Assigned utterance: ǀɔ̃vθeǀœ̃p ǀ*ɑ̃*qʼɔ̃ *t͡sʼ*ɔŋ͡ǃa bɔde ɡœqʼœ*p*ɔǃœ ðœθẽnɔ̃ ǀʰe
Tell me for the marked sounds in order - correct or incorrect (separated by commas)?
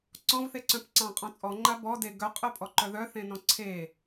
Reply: correct, correct, incorrect